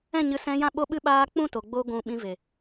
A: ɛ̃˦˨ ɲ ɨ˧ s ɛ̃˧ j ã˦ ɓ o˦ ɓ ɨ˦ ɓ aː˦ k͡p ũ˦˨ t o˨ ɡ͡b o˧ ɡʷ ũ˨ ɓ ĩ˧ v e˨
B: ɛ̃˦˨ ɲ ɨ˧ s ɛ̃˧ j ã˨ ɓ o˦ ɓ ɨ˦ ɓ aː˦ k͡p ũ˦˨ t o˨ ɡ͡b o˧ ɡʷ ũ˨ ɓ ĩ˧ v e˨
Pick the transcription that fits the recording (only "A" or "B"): A